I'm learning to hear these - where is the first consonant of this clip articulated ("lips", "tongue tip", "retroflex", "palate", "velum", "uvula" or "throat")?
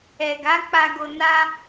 velum